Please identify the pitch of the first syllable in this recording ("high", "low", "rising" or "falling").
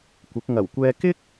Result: rising